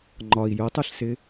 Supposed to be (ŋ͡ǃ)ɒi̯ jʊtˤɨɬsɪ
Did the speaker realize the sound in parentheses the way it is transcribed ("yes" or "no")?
yes